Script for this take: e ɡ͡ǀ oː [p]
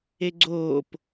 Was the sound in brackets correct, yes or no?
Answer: yes